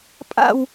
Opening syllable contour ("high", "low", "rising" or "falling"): falling